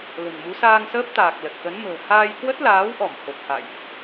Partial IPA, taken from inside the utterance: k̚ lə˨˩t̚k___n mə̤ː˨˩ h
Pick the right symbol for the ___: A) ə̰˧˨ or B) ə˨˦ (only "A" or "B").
B